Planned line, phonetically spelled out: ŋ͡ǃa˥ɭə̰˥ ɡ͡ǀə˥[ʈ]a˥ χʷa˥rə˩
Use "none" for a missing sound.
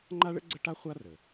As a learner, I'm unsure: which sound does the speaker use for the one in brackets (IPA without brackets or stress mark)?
ʈ